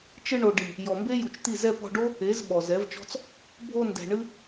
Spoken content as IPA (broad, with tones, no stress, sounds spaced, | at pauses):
t͡ʃ ɨ˧ ɳ o˨ ɖ i˨ | j ɔ˨ m b e˦ j u˨ t͡ʃ t̪ i˦˨ z ɛ˧ p ɔ̤˧ ɖ o˦ | e˨˦ z ɓ ɔ˨ z ɛ˨˦ v t͡ʃ ɔ̤˦ t͡s | bʱ o˧ n d ɛ̤˨ ɳ ɨ˦